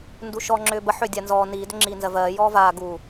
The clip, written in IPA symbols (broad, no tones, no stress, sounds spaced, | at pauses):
n d u ʃ ɔ ŋ͡ǁ ʏː b ə ħ ʏː dʲ a n z ɔː n iː d ʏ ŋ͡ǁ iː n z ɜ v ɜː j ɔː v aː ɡ u